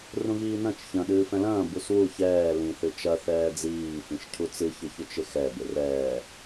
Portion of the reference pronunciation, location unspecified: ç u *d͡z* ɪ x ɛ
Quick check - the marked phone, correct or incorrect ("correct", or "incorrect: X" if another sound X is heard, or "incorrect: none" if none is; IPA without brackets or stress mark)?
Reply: incorrect: t͡ʃ